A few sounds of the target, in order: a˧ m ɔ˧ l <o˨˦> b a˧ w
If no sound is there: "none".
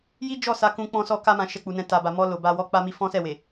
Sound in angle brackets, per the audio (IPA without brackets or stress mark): o˨